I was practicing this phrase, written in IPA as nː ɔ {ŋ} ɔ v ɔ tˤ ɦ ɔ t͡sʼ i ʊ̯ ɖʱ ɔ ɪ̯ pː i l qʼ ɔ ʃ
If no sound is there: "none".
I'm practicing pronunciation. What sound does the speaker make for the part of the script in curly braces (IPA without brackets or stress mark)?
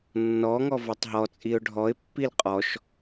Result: ŋ